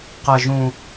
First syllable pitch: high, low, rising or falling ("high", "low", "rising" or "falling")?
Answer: low